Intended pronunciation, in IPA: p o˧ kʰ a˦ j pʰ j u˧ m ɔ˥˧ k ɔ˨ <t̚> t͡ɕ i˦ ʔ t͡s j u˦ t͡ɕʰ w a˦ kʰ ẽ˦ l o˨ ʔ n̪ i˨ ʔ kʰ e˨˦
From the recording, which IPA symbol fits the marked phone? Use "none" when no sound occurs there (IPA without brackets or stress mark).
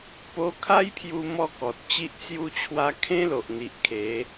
t̚